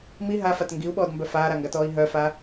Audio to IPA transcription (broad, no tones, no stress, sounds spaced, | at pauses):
m i ɦ a f a t ŋ ɡ i u̯ ɓ ɔː d m b œ f aː ɾ a ŋ ɡ a t ɔː i̯ ɦ œ f a